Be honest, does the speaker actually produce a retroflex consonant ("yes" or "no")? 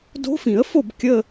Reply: no